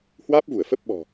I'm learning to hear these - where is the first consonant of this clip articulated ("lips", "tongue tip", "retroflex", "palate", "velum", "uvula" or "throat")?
throat